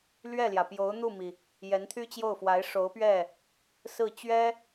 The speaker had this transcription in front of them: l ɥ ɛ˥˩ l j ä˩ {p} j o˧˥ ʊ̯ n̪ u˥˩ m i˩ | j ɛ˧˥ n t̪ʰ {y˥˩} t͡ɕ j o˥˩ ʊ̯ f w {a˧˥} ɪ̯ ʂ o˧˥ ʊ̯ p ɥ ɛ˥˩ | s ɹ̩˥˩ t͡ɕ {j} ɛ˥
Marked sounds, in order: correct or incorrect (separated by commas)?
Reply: correct, incorrect, correct, incorrect